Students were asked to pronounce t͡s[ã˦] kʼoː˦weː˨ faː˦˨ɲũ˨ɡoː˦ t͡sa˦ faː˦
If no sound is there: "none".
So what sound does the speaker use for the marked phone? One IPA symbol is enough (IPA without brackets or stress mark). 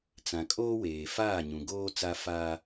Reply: ã˨